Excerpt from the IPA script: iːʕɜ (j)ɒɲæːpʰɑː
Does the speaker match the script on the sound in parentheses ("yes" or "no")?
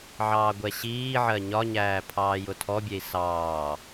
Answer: no